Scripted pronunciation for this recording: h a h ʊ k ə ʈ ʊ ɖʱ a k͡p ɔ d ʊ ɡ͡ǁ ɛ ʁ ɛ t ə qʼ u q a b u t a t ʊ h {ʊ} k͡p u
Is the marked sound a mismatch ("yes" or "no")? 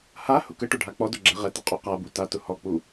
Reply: yes